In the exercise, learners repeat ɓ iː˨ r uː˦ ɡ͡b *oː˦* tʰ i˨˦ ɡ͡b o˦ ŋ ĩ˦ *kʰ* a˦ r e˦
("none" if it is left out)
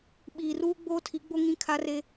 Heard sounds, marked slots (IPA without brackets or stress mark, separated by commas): oː˦, kʰ